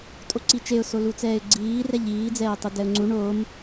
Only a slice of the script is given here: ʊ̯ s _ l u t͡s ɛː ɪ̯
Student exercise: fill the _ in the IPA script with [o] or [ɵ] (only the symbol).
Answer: o